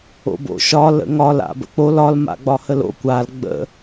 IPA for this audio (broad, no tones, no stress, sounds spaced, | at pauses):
o̰ b o̰ ʃ ɒ l ə̰ ŋ ɒ l a̰ b ə̰ k͡p o l ɒ l m a̰ ɡ͡b ɒ h ə l o̰ kʷ a l ɡ͡b ə̰